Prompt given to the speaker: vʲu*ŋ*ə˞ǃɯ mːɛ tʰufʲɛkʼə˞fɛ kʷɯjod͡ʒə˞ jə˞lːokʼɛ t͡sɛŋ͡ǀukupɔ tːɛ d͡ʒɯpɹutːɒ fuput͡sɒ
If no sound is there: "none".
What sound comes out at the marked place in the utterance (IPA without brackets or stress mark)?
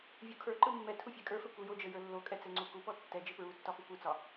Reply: kʰ